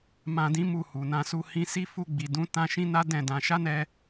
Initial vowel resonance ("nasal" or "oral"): nasal